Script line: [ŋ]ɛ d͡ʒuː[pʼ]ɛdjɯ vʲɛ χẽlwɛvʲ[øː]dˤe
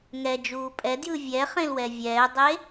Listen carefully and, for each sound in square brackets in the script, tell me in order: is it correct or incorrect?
correct, correct, incorrect: ɛː

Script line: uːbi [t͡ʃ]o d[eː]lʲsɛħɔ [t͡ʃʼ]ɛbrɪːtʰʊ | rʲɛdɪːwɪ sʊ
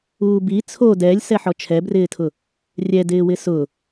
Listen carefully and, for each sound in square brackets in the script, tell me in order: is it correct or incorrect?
incorrect: t͡sʰ, incorrect: ɛː, incorrect: t͡ʃʰ

